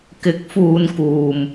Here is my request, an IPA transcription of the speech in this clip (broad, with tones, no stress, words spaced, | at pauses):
kɪ˨˥k̚fuː˨n kuː˨m